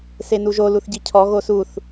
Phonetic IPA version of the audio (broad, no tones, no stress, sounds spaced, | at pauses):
s e n u ʒ o l u θ ɟ i cʰ ɔ ɣ o s u θ